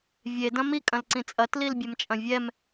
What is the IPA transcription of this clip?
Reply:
vʲ e d ɐ̃ m i kʼ ɐ̃ l ǀ ĩ t͡sʼ ɐ t l i l bʲ ɛ m t͡ʃʼ ɐ̃ vʲ ɛ m

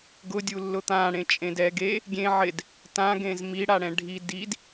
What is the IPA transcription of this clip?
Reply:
ɡ ʊ dʲ u lː ʊ t̪ ã ɽ ẽ t͡ʃʼ ẽ d ɛ ɡ e | ɡʲ ẽ ʕ ɪ d | t ã ɡ ẽ z m i ɽ a ɽ ɛ̃ ɖʱ i d i d

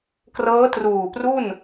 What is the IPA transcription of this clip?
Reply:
k r ɤː˦˥ t r uː˨˩ p r u˥˩ n

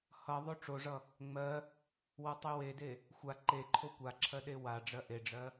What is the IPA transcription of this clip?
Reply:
h ʌ ðˤ o ʈ͡ʂ o ʐ ʌ | ŋ͡m ɜ | w ʌ tˤ e w e d e | xʷ a ǃ e ǃʰ o kʷ a ǁʰ ɜ ɗ e w a ɖ͡ʐ ɜ ʔ e ɖ͡ʐ ɜ

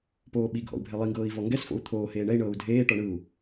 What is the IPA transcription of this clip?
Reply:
p oː ɓ i ɡʱ ɔ̰ u̯ bʱ ɛ lˠ i ŋ ɡ ɤː i̯ v ɔ ŋ ɡ ɛ s f o̰ u̯ t̪ʰ oː h eː ɳ ɛ i̯ ɳ ɤː u̯ dʱ eː ʈ ɔ ɳ ɯ u̯

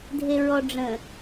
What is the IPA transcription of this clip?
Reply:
dʱ e ɹ ɔ ɖ͡ʐ ə̃

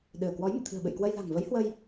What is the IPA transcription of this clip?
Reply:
ɗ ɨ˧˩ ə̯ k w ɔ˨˦ j m ɨ̰˧˨ t̪ʰ ɨ̤˨˩ ə̯ ɓ ɨ̰˧˨ j k w ə˧ j l a̤˨˩ ŋ v ə˨˦ j h w ə˧ j

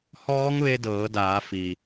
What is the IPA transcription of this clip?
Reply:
h ɔː˧˥ ŋ ʋ e˧ d ɤː˩˧ d aː˩˧ f i˩

